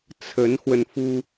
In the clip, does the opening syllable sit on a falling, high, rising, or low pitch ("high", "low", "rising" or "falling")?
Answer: rising